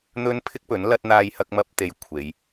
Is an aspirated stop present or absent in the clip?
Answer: present